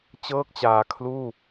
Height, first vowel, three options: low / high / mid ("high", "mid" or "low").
mid